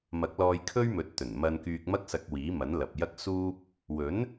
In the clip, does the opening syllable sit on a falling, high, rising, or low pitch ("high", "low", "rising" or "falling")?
rising